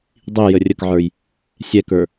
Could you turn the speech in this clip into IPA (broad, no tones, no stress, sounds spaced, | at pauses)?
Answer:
dˤ i j ə rʲ ə k ʕ ə˞ j | sʲ ɛ k ə˞